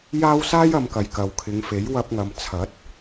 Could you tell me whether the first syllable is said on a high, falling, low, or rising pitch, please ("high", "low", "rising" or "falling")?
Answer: high